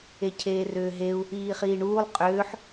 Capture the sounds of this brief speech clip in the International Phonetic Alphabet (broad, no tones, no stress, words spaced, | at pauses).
ecʰeːrʏːɦeu̯ | iːχiːɳuːlˠ qʼʏːħ